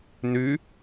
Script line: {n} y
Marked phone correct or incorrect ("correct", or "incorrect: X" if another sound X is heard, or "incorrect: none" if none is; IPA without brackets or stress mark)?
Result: correct